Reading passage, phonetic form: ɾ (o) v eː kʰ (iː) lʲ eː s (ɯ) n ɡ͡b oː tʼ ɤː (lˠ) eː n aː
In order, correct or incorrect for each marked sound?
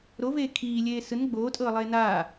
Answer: correct, correct, correct, correct

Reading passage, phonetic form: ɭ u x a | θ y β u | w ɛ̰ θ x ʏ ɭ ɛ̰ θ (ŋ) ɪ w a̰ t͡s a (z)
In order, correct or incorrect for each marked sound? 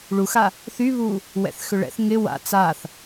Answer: correct, incorrect: θ

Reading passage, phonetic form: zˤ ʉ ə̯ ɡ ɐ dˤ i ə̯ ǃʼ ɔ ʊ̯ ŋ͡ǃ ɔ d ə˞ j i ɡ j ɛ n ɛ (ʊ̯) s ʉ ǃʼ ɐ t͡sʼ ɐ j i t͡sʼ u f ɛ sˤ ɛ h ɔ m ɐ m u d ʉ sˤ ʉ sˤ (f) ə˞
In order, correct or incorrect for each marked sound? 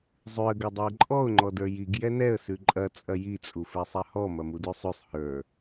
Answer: incorrect: ə̯, incorrect: h

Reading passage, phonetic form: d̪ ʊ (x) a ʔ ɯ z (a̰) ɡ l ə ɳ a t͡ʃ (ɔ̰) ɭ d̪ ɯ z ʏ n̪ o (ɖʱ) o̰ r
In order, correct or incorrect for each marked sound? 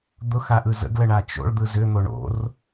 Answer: correct, incorrect: ə̰, incorrect: o̰, incorrect: ɳ

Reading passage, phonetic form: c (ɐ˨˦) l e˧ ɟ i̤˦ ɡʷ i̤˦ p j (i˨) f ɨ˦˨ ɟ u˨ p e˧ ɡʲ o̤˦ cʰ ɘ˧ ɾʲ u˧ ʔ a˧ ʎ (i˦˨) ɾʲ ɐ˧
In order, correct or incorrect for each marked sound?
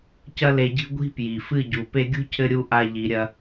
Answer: incorrect: ɐ˦, correct, incorrect: i˨

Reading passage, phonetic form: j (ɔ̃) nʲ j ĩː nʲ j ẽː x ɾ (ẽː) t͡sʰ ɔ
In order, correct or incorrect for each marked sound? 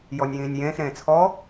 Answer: incorrect: ɔ, correct

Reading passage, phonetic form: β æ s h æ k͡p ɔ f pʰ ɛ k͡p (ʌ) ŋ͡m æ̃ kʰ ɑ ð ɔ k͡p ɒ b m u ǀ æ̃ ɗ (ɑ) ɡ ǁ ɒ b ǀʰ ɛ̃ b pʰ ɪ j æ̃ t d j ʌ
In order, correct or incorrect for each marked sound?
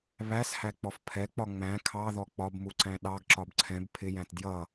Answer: incorrect: ɒ, correct

